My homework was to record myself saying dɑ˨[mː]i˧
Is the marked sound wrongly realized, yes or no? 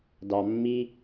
no